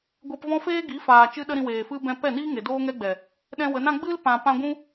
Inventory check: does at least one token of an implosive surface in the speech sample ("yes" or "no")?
yes